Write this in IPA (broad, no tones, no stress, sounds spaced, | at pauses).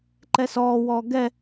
ǃ ɛ s ɔː w ɔː ɡ ɛ